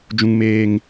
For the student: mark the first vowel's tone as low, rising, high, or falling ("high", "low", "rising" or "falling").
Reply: low